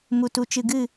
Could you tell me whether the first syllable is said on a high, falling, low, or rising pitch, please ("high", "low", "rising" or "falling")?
low